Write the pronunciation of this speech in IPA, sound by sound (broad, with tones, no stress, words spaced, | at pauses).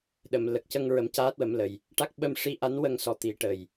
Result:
ɗə˨˩˨m lə˨˩k̚cə˧ŋ ɹə˨˩˦mcaː˦˥t̚wə˨˩˦mlə˨˩j | ʈa˦˥k̚ ɓə˧mʂi˧ ʔa˧˥nwə˧ŋsɔ˨˩ t̪i˨˩˦ʈə˨˩j